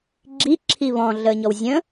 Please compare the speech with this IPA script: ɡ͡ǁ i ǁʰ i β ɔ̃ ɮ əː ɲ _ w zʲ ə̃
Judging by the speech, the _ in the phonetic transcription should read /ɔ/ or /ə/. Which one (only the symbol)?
ɔ